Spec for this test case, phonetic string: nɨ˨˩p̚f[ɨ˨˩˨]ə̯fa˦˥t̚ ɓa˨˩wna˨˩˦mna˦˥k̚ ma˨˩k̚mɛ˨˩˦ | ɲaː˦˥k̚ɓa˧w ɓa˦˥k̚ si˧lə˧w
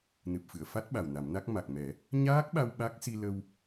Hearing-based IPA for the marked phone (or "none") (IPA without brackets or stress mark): ɨ˨˩˨